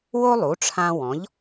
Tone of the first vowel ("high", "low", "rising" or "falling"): high